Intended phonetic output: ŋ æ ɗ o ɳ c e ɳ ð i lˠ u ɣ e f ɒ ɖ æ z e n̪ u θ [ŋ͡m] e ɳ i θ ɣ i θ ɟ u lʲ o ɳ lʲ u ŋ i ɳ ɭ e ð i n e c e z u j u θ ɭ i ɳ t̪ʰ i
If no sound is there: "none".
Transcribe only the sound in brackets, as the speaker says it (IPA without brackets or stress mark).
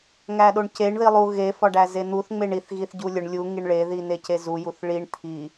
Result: ŋ͡m